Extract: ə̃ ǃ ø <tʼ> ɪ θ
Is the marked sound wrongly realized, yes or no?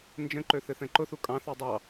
yes